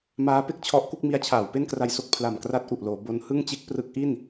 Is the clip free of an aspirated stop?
no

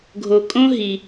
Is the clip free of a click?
yes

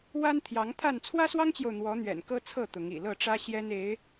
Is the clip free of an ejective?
yes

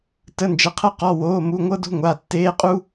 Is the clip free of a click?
yes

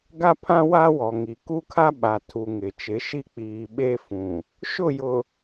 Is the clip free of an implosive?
no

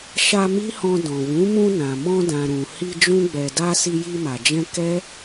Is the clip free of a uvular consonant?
yes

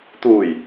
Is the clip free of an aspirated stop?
yes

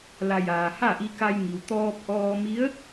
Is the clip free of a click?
yes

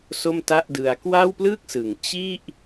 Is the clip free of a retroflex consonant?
yes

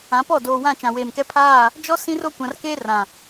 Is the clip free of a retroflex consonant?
yes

